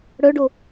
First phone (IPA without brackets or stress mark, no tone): ɽ